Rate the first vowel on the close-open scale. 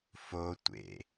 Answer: mid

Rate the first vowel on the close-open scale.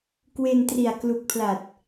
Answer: mid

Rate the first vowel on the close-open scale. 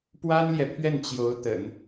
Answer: open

